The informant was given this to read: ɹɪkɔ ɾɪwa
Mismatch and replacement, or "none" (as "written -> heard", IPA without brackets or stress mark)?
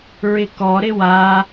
none